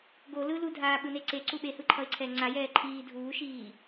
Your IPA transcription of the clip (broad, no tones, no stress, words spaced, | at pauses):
ɡolɯ ludʱaːɓɯne ǀeǀu ɓehɯǃʰʌɪ̯ǀʰɛː ŋ͡ǀajɛː ǃʰiː dʱuːʃiː